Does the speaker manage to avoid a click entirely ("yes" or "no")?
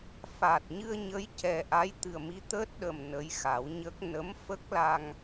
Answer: yes